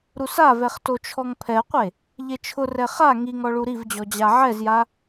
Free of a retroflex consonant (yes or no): no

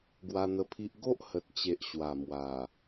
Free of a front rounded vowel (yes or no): yes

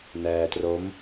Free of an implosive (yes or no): yes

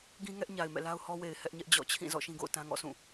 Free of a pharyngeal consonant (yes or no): yes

